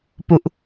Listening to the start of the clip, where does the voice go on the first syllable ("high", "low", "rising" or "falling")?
falling